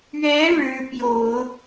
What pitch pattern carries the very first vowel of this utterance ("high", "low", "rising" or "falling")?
rising